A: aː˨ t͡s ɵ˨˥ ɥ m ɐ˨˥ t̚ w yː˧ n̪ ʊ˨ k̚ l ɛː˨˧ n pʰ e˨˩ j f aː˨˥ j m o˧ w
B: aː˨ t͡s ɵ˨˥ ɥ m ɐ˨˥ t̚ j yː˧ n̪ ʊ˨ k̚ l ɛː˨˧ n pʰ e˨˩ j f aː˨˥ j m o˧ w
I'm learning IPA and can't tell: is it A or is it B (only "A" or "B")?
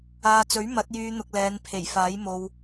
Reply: B